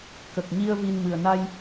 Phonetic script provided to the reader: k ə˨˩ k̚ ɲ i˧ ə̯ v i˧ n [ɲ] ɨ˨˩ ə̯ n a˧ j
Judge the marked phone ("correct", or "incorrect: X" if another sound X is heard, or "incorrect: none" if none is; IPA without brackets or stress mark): incorrect: m